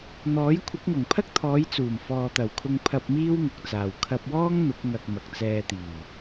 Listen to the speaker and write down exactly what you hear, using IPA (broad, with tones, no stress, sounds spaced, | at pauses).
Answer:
n̪ ɔː˨˥ j kʷʰ ɪ˨˥ k̚ ŋ ɐ˨˩ ŋ pʰ ɐ˥ k̚ t̪ʰ ɔː˨˧ j t͡s uː˨˩ m f ɔː˨ t̪ ɐ˨˩ w kʰ ʊ˧ ŋ pʰ ɐ˧ p̚ m iː˥ w ŋ ʊ˨ k̚ t͡s aː˨ w kʰ ɐ˧ p̚ w ɔː˥ ŋ n̪ ʊ˨˥ k̚ ŋ ɐ˧ k̚ m ɐ˨ k̚ t͡s ɛː˧ t̪ iː˨˩